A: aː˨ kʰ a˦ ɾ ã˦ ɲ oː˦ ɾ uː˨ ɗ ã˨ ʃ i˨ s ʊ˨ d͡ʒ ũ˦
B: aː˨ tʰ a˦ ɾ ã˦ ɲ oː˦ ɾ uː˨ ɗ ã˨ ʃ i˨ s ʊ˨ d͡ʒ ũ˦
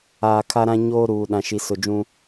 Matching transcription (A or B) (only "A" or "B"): A